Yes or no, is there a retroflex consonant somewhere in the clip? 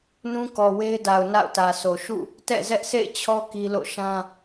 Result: no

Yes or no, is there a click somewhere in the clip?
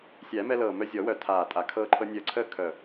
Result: yes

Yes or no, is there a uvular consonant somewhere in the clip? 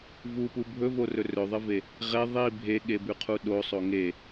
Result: yes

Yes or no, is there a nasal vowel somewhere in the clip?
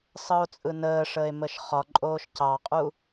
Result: no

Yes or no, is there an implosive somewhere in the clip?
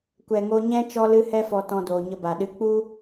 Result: yes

